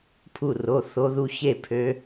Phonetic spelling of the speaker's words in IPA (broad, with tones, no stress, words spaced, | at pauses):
pʰu˧˩ro˩˧˩ θo˦˥ ðu˦˥çe˥˩ pʰø˨˥